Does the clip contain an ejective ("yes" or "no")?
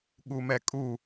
yes